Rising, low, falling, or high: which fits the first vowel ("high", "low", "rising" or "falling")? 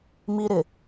high